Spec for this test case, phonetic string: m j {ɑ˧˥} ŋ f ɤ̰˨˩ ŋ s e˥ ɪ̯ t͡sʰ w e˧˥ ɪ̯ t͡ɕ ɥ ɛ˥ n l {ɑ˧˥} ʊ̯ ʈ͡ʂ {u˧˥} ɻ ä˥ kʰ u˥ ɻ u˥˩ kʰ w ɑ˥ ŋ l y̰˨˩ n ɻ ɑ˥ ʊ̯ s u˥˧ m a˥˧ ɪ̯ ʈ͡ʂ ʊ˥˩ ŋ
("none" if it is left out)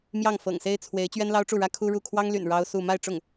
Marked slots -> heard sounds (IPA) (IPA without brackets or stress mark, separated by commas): ɑ˥˩, ɑ˥, u˥˩